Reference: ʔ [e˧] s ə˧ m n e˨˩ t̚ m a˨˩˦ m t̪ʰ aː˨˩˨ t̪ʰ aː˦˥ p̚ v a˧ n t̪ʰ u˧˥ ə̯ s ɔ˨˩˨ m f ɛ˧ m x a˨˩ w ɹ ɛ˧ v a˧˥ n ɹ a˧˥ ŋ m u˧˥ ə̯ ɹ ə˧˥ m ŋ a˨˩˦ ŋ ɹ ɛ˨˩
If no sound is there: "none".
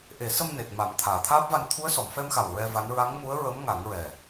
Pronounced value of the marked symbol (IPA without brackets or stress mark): e˨˩˦